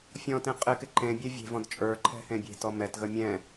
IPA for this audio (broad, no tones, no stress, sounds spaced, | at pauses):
fʲ ɔ̃ t ẽ qʼ ɪ k ɪ ǃ ẽ bʲ e vʲ e̤ v ɔ̃ d t͡ʃʼ ə˞ ǃʰ ɛ̤ h ẽ bʲ e̤ t ɔ m ɛ t ɣ ə mʲ ɛ̃